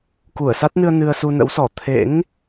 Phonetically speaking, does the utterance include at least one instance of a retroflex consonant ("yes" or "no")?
no